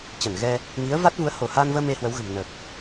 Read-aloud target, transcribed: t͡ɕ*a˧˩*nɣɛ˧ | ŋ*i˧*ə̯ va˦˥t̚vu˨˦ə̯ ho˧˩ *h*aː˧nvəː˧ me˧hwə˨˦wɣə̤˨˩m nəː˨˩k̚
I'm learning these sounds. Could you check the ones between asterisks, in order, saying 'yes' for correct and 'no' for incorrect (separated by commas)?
no, no, yes